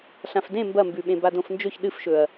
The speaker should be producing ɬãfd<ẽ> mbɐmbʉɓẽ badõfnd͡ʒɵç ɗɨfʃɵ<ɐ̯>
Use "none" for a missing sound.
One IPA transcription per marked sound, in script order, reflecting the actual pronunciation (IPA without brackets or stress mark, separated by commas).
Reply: ẽ, ɐ̯